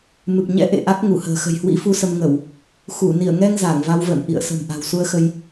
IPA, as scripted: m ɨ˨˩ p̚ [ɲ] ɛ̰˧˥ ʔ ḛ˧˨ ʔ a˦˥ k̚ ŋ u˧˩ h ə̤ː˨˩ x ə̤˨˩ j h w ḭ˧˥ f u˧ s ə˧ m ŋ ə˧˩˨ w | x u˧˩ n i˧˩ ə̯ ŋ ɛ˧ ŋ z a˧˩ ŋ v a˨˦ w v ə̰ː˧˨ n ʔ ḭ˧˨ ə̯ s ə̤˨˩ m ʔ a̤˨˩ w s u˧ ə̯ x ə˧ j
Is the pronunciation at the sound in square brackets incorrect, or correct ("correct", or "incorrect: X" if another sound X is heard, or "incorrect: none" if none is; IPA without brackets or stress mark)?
correct